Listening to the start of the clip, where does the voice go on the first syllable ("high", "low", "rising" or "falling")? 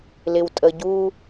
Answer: low